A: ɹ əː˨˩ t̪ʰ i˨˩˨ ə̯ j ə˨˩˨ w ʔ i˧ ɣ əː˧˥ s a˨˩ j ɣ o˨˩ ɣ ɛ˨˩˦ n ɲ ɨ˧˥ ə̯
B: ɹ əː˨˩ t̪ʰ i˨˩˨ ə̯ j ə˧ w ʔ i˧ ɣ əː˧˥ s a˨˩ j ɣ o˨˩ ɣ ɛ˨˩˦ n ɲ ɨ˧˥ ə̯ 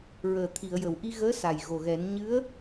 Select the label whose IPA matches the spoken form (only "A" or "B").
A